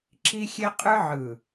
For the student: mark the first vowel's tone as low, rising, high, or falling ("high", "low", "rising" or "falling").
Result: high